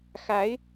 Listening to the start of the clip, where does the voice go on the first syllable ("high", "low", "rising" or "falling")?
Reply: rising